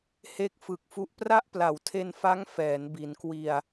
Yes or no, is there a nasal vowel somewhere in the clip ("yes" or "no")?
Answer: no